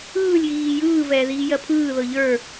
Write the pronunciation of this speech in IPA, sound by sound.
ɯːlʲɣiː jɯːvɛːðiː jɜpʰɯː ðɤʎə˞

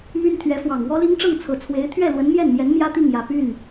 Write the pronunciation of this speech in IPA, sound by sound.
my˥nt̪ʰɥɛ˧˥fwɑ˨˩ŋ wɔ˥li˥ŋ ʈ͡ʂɤ˥˩ŋt͡sʰɤ˨˩t͡sʰwe˧˥ɪ̯ t̪ʰɥɛ˥˩lwə˧˥n mjɛ˥˩nmjɛ˧˥n mjä˥t̪i˥˩ŋjä˨˩ py˥˩n

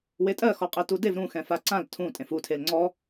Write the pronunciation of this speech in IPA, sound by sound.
wetʼɜxɔqʼe tudev ɾũxɛ̃ faǀãl tʰũ tʼẽfutʰel ŋ͡ǀɔ

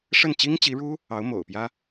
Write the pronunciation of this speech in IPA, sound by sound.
ʂə˥˩nt͡ɕi˥ŋt͡ɕi˧˥ɻu˥ | ɑ˧˥ʊ̯mo̰˨˩ʊ̯pjä˥

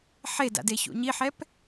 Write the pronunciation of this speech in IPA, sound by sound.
ħeda̰ deçṵɲiħɛp

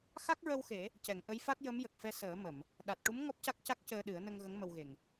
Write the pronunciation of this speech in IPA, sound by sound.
xa˦˥k̚ɹə˧wxe˨˩˦ | cɛ˨˩˨ŋʔə˧˥jfa˦˥t̚jə˧˥m jə˨˩k̚fɛ˧səː˨˩˦ mə˨˩˨m | ɗa˨˩t̚ʈu˧˥m ŋɔ˦˥p̚ca˦˥k̚ca˦˥k̚ cəː˧ɗɨ˨˩˦ə̯nə˧ŋɣə˧˥ŋ mə˧wɣe˨˩ŋ

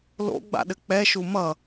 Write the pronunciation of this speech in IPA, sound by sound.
lo̰ɡ͡ba̰ɗɘ k͡pɛʃu mʌ

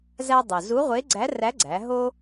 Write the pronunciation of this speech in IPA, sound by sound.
zæ˧ dˤo˩zu˧˥ʁʷe˧˥ ɡ͡ǀæ˧˥ræ˧˥ɡ͡ǀæ˩˧ ɦo˥

